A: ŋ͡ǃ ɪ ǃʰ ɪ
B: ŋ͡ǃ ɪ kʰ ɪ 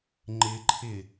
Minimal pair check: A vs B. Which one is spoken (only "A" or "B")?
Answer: A